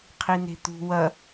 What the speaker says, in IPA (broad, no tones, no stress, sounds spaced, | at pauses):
qʰ i n e̤ t̪ ṳ w ɐ